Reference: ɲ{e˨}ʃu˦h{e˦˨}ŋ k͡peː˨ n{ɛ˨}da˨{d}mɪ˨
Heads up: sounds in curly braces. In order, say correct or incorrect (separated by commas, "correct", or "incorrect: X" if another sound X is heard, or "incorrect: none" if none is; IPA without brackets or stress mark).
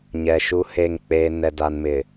incorrect: ɛ˨, correct, correct, incorrect: n